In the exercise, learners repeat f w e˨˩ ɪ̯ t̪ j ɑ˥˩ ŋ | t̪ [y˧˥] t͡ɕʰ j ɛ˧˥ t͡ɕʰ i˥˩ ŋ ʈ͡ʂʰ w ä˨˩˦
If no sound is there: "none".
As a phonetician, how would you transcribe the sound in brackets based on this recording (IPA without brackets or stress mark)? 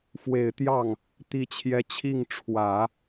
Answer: i˧˥